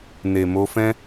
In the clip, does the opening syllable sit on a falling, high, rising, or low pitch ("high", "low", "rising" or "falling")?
low